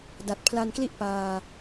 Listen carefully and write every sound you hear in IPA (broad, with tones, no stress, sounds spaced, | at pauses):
d a˨˩ t̚ pʰ l a˧ n k l i˥˩ ʔ p aː˧